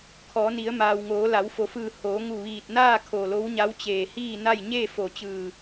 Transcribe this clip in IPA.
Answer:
kʰ ɔː˩˧ n i˩˧ ə̯ m aː˩ w ŋ oː˩˧ l a˩˧ w f o˩˧ f ɯː˧˩ h oː˩˧ ŋ u˧˩ ʋ iː˧˩ t̚ n aː˥˨ kʰ o˧˩ l o˧˥ w ɲ a˧˥ w t͡ɕ eː˧˩ h iː˥˨ n a˥˨ j ɲ eː˥˨ f o˧˩ t͡ɕ ɯː˧˩

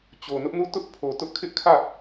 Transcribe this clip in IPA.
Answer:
t͡ɕ o˨ n ʊ˦ ʔ n u˦˨ t ʊ˦ ʔ pʰ o˨ t ʊ˦ ʔ kʰ ɪ˦ ʔ kʰ ä˦˨

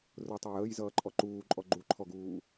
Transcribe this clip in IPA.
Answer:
r ʊ tˤ æ j əː j z ʌː ǃʼ ɔ ǃ uː ǃʼ ɔ ɡ͡ǃ u ǃʰ ɔ ɡ uː

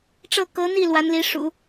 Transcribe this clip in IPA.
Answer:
ʈ͡ʂ ɤ˥˩ k ɤ˧˥ n̪ i˥˩ l w a˧˥ n l i˧˥ ʂ ṵ˨˩˦

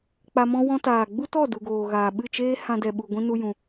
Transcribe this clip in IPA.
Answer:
k͡p a˧ m ɔ̃˦ w ɔ̃˦ t aː˨ ɡ͡b u˦ t ɔ˦˨ d u˨ ɡ oː˨ ɣ aː˨ ɓ ɨ˦˨ t͡ʃ eː˦ h ã˧ d ɛ˨ ɓ u˧ ɡʷ ĩ˦ n u˦ j ũ˧

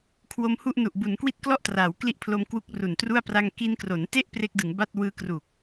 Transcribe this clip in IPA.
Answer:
kʰ w o˧ m h u˥˩ ʔ n u˨˩ ʔ b u˩˦ n k w i˦˥ t̚ k l ɔ˥˩ ʔ t r aː˩˦ w k l i˦˥ ʔ pʰ l o˧ m k w u˦˥ k̚ r u˨˩ n t r u˥˩ a̯ p r a˧ ŋ k i˧ n k r o˩˦ n t e˥˩ ʔ p r e˦˥ k̚ d ɯ˩˦ ŋ b a˥˩ t̚ w ɯː˧ k r u˨˩ k̚

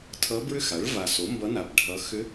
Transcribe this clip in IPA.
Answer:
tʰ ʌ˧˥ b ɹ ʏ˥˧ x a˩˥ ɭ v a˨˩ s o˩˥ m b ʌ˧˥ n a˨˩ b ɖʱ ʌ˧˥ x ʏ˧˥

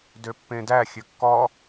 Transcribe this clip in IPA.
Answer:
d ø pː ẽ d æ xʲ ø kː ɔ

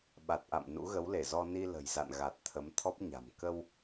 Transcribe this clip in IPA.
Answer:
ɓ a˨˩ t̚ ʔ a̰˧˨ m n ṵ˧˥ ɣ ə˨˦ w l e˧˩ z ɔ˧ n i˧ l ə̤˨˩ j z a̰˧˨ n ɣ a˨˩ t̚ t̪ʰ ə˨˦ m t̪ʰ ɔ˦˥ p̚ ɲ a̤˨˩ m k ə˧ w

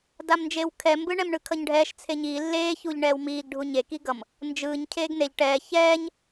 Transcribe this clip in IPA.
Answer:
d a m n d͡ʒ e w kʰ ɛ m b ɯ ɳ ɛ m ɳ ɯ kʰ ʌ ɲ ɖʱ ɛː ʃ t͡sʰ e ɲ iː lː eː ç u ʎ ɳ ɛː w m iː ɡ ɖʱ u ɲ e k i ɡ ʌ m | n d͡ʒ ɯː ɲ cʰ eː ɡ n e ʎ ʈ ɛː ç ɛː ɲ

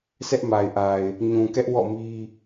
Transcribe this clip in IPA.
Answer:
s ɛ˦ ʔ m a˨ ɪ̯ ʔ a˨ ɪ̯ | ɲ ũ˨ k ɛ˦ ʔ w ɔ̰˦˨ m i˦

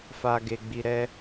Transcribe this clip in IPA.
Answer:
f a˨ ɡ e˨ ɡ͡b i˨ ɾ ɛ˧

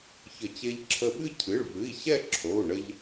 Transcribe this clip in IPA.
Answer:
ç ə˨˩˦ t͡ɕ e˧ ʎ ǁʰ ə˧ ɓ ɨ˥˧ cʰ ɨ˩˧˩ ɭ v ɨ˩˧˩ i̯ ɕ ɛ˥˧ ǁʰ o˩˧˩ u̯ ɳ ə˧ ʎ

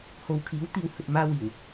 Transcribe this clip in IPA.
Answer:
h o˨ w kʰ iː˨˥ w t̪ iː˨˧ w h ɵ˨ t̚ m aː˥ w iː˨˩ w

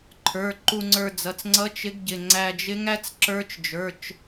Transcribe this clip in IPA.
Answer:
ǃʰ ə˞˩˧˩ ǃ u˧ ŋ͡ǀ ə˞˧ d͡z ʌ˩˧˩ t͡s ŋ͡ǀ ʌ˧˥ t͡ʃ ɪ˧˥ ɡ ɟ ɪ˩˧˩ ŋ͡ǀ æ˧ d͡ʒ ɪ˧˥ ŋ æ˧˥ t͡s ǁ ə˞˧˥ t͡ʃ d͡ʒ ə˞˩˧˩ t͡ʃ

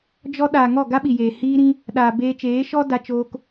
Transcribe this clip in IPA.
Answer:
d͡ʒ ɔ˧ ɗ aː˨ ŋ ɔ˦˨ ɡ a˦ ɓ i˨ j eː˨ h iː˧ ɾ ĩ˧ | ɗ aː˨ b eː˧ t͡ʃ eː˨˦ ʃ ɔ˦ d a˧ t͡ʃ oː˧ k

